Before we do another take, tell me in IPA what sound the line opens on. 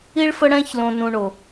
i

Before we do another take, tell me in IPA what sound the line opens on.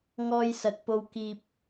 ŋ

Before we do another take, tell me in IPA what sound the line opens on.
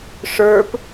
ʂ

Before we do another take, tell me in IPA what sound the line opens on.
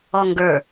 ɔ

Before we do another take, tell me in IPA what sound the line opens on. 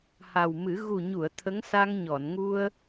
h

